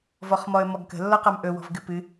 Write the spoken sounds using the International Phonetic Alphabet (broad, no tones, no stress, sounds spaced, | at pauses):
v ɔ χ m ɔ ə̯ m ɔ ɡ k ə̤ lː ɔ q a m ʔ ɵ w ɔ̤ v ɡ ɨ p ɨ